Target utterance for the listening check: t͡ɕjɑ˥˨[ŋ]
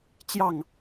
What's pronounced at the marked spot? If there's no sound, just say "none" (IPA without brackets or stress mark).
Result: ŋ